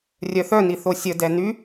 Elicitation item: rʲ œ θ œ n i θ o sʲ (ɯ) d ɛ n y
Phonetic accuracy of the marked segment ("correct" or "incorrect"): incorrect